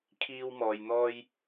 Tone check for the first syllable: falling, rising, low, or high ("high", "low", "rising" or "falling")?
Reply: high